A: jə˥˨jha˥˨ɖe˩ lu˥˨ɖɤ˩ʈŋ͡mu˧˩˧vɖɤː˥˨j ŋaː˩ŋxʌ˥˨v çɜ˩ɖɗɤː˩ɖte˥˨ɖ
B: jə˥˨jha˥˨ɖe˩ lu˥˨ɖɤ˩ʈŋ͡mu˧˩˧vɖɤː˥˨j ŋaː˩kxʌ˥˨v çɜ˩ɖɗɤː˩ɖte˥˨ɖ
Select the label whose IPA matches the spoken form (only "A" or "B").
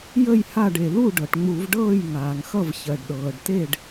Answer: A